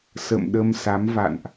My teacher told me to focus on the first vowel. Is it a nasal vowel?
no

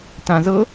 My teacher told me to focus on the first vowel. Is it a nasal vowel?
yes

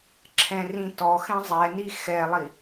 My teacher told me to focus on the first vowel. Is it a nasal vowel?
yes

